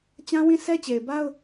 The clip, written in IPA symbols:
t͡ɕã˦wĩ˦˨ sʰɛ˦t͡ɕe˨ɪ̯ ba˦ʊ̯

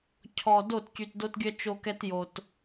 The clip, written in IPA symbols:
cʰɔ˨ do˦˨tcy˨tdo˦tɡʲœ˦ t͡ʃo˦kɛ˦tjo˨t

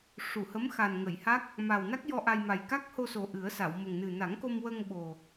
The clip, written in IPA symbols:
ʂu˨˩˨hə˧˥m xa˨˩nŋə˨˩˨jha˦˥k̚ | maː˨˩wna˦˥k̚jɔ˧ ʔa˧jma˨˩j ka˦˥k̚ho˧so˨˩ ʔɨ˨˩˦ə̯sa˨˩˨wmə˨˩ŋ nɨ˨˩na˨˩˦ŋko˧mwə˧ŋ ɓo˨˩

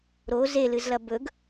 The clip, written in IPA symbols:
ɾo zelɨzlɐ bɵɡ

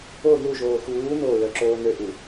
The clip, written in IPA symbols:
o ðuʒoː xuː no ɹœǁoːnøʔu

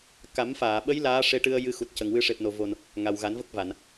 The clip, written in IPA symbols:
ka˨˩˦mfaː˨˩˨ɓə˧˥j laː˧˥ʂe˧˥ʈɨ˧ə̯ jɨ˧xu˨˩t̚cə˨˩ŋwɨ˧ ʂe˨˩p̚no˨˩vo˨˩n | ŋa˨˩wɣa˨˩˦nvə˦˥k̚ va˨˩˨n

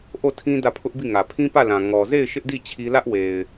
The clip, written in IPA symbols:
ʔo˦˨tʰĩ˦ dä˦˨pʰʊ˦ʔbi˦˨ ŋä˨ pʰĩ˦pä˦˨lã˨ ŋɔ˨ze˦˨ɪ̯ ʃɪ˦ʔdi˦˨ t͡ɕʰi˦ lä˦ʔwe˨ɪ̯

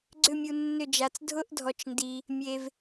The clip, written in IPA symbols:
ɡ͡ǀʏ˥˧mʲu˧ nːʏ˥˧d͡ʒa˧t͡s dʱʊ˥ʔdʱɔ˧t͡ʃndi˧ | mʲe˧v

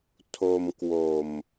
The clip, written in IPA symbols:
tʰo˧mkwo˨˩m

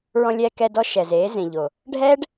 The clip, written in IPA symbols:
ɹɔ̃˧lʲɛː˧kɛ˧dɔ˧ ʃɛ˨zeː˨˦zẽ˨ʎo˨ | ɖʱɛː˦ɖ

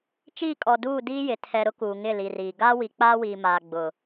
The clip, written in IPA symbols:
t͡ʃiː˦˨kʼɔ˨duː˦˨ diː˦jɪ˨ tʰɛ˨ ɾʊ˦kuː˨ŋɪ˦˨ li˨riː˨ ɡaː˦wi˨k͡paː˦ wiː˨maː˨ɡ͡bʊ˨

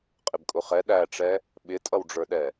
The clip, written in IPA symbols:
qʼɪbkʼʊχɛ ɗæʈ͡ʂɛ | ɓɪtʼʌwɖ͡ʐə˞ɗɛ

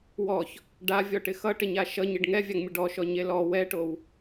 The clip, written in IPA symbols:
wɔç | ɖavʲɔʈɪ xʌʈɪɲa ʃʌɲɪɖ ŋɛvʲaŋmʲʌ ɖɔʃɔɲe lɔ wɛʈow

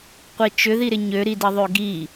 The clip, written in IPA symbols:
qʷit͡ʃʏðiɾɪ ɲøɾidiðˤø ɡi

